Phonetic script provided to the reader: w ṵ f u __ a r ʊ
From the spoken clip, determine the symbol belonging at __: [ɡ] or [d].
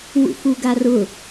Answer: ɡ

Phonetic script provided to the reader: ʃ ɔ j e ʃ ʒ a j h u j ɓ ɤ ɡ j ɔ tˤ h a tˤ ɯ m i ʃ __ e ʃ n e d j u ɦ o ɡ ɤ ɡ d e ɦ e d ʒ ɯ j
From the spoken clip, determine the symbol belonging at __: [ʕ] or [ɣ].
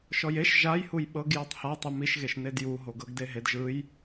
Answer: ɣ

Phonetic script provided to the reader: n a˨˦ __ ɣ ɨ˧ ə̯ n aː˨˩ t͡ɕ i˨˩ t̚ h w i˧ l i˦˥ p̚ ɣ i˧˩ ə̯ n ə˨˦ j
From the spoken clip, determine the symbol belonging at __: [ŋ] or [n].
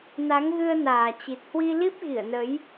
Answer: ŋ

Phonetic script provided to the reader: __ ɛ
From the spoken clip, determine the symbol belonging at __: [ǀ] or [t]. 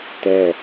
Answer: t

